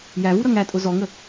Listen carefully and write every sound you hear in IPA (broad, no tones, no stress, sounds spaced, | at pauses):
j æ v u ɾ ʌ ŋ æ tʼ ʊ z ɔ ŋ ə